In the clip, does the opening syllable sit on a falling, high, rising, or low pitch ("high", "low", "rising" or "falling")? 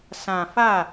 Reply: low